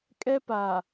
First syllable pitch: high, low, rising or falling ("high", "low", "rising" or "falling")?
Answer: high